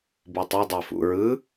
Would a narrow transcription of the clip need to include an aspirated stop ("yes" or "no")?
no